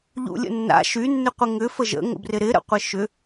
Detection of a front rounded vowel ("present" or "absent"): present